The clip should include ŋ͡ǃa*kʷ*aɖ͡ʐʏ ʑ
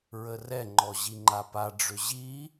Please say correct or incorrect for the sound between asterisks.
incorrect